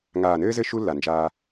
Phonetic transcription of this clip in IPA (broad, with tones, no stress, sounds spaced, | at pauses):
ŋ aː˨ n ɘː˦ z ɘ˦ ʃ u˦ lː a˨ n d͡ʒ a˦